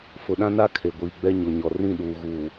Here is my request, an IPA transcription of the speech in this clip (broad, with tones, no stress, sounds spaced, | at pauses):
f ʊ˨ ɗ ã˦ n a˦ kʰ e˨ ɡʷ iː˨ ɡ͡b ɛ˦ ɲ o˨ ɲ ɔ˨ r ĩ˦˨ ɗ uː˨ ɣ uː˨